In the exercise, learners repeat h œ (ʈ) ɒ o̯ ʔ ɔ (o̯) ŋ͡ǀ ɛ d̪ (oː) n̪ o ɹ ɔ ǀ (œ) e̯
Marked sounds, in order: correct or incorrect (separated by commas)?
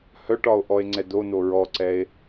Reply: correct, incorrect, incorrect, incorrect